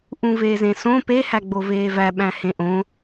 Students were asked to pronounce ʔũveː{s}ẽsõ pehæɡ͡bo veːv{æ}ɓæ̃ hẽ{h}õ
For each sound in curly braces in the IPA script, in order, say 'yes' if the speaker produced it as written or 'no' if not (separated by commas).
no, yes, no